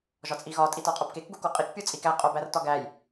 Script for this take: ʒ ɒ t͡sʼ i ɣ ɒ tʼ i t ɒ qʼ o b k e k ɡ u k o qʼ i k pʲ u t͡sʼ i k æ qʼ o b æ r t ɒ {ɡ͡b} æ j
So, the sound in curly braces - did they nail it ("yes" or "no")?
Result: no